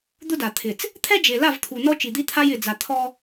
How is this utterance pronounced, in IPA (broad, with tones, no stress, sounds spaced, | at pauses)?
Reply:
d̪ ʊ˦ d a˨ t̪ʰ ɪ˨ t͡s | t̪ʰ ɛ˦ d͡ʒ e˨ l a˦˨ v t̪ʰ u˨ n ɔ˦ t͡ʃ i˨ d̪ i˦ t̪ʰ a˦ j ɪ˨ d͡z a˨ t̪ʰ ɔ˦